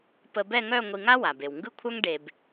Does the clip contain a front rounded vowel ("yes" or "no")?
yes